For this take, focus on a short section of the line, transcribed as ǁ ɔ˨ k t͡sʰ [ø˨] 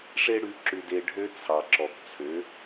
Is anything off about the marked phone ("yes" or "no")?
yes